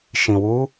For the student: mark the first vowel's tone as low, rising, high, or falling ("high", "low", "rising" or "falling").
low